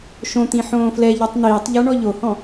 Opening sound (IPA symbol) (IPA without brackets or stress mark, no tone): ʃ